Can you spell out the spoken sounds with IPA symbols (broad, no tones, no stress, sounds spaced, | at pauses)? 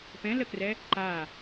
p ɛ̃ l ə k r ɛ | ǃ a